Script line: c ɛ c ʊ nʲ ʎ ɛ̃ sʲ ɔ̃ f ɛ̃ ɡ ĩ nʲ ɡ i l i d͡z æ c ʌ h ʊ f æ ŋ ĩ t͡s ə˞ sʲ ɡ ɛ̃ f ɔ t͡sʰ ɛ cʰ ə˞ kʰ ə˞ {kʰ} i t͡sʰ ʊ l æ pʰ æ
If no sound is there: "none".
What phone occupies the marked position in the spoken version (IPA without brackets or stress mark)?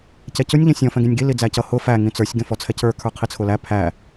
qʰ